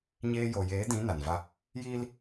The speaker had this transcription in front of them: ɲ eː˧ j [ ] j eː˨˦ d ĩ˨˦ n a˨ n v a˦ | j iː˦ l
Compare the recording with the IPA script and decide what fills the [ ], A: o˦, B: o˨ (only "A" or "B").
B